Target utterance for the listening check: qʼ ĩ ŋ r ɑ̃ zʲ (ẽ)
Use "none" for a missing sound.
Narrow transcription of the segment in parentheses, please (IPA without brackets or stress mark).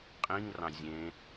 ẽ